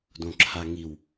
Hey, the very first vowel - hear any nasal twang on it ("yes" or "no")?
yes